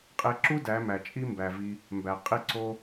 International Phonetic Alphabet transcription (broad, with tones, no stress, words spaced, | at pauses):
qʼe˧ǁu˦ dæ˨˦ mæ˨t͡ʃʼi˦ mbæ˨vi˧ | mbæ˨ qʼi˦ǀo˦